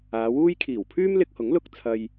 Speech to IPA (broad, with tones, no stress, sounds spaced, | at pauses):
aː˨˧ w uː˥ j kʰ iː˨˩ w pʰ yː˥ m l ɪ˧ k̚ h ʊ˨˥ ŋ l ʊ˧ k̚ t͡sʰ ɐ˧ j